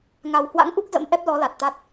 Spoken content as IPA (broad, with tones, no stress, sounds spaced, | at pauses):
ŋ a˨˩ w h w a̰˧˥ ŋ ʔ u˦˥ k̚ z ə̰˧˥ m ʔ ɛ˦˥ p̚ l ɔ˨˦ l a˨˩ t̚ t̪ a˦˥ t̚